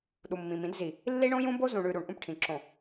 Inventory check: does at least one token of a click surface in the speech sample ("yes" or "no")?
yes